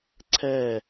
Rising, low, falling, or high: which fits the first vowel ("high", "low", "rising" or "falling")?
falling